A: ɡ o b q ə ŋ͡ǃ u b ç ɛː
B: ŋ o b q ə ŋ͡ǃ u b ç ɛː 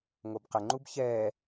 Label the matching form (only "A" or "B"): B